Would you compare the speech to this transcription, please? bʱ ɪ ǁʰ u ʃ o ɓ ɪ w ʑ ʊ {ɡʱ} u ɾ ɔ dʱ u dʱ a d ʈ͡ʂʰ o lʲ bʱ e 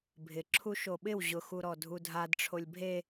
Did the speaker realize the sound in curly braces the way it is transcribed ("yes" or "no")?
no